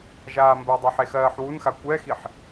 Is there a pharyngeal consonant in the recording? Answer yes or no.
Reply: yes